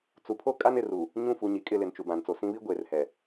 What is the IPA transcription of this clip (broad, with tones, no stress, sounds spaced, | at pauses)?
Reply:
t͡s u˨ pʰ o˦ kʼ a˦ n ɪ˨ r u˨ | ɲ ũ˦˨ f u˨ ɲ i˨ kʼ ɪ˦˨ l ɪ˨ n t͡ʃ u˨ b ã˨ n t͡s o˨ s ĩ˦ β i˦ ɡʷ eː˨ r h ɛ˨